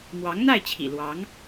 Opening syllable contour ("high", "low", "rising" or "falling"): rising